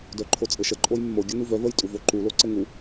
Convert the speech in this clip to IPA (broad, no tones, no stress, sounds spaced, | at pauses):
d œ ǃʰ o t͡sʼ ɘ ʃ ə ǃʼ o j mː o ɡʲ ə n u v œ v ə j tʼ u v o ǃ u l o ǀ ɘ ŋ u